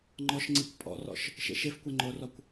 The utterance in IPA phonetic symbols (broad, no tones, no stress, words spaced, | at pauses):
ŋ͡ǃɔʃŋ͡ǀikʷ pʼɔ̰rɔ̰ʃ | ʃḛʃefkʷɛ ŋ͡ǃorɔkʷ